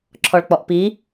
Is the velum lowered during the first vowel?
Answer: no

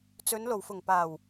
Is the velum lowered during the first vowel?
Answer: no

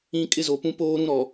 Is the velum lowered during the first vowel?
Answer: yes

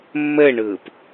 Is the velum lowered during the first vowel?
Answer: no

